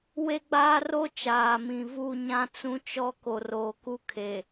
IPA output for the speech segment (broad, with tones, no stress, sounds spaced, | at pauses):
w e˦ ɡ͡b aː˦ r o˦ t͡ʃ aː˨ m ĩ˨ v u˦˨ ɲ ã˦ t͡s ũ˦ t͡ʃ ɔ˦ k o˨ r oː˨ k u˦ kʰ e˨